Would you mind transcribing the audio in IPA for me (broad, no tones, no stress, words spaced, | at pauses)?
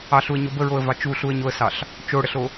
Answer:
ɑɬuə̯ɲo bəɹoə̯vɑ t͡ʃuɬuə̯ɲoə̯sɑɬ | t͡ʃoɽəɬo